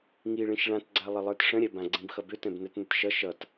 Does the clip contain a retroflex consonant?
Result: yes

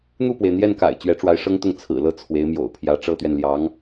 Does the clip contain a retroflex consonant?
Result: yes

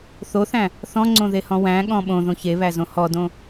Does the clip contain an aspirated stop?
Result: no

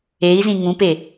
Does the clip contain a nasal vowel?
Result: yes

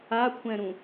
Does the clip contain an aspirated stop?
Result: yes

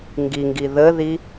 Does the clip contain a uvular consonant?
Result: no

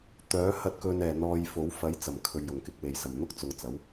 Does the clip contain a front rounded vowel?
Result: yes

